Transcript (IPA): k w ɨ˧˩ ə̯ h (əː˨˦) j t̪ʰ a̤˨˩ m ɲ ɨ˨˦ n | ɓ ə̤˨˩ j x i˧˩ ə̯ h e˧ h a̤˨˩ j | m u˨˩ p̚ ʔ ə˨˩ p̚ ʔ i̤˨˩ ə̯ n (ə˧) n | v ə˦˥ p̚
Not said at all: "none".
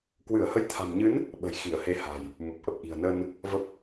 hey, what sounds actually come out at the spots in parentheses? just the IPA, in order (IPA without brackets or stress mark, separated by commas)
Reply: ə˨˦, ə˧